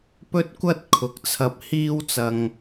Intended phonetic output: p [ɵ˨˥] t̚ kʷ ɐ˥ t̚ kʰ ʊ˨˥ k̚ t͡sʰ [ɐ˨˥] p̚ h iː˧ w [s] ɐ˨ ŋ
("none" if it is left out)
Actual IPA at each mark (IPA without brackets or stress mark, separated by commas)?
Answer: ɵ˥, ɐ˧, t͡s